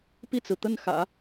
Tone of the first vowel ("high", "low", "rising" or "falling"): falling